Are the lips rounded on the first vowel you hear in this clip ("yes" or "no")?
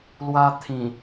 no